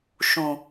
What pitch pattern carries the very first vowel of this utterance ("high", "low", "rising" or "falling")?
low